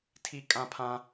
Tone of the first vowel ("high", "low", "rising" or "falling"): high